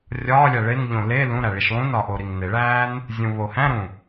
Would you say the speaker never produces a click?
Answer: yes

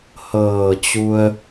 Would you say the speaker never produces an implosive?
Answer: yes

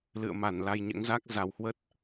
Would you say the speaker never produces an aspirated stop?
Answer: yes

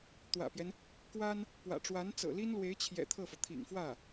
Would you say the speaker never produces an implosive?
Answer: yes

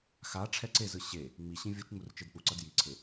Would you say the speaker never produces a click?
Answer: no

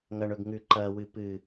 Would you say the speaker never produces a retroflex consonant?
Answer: no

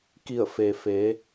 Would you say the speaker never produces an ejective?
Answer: yes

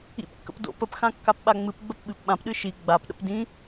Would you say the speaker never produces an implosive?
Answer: no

